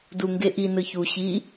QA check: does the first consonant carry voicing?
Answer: yes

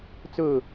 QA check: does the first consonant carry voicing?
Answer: no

